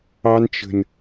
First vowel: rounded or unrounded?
unrounded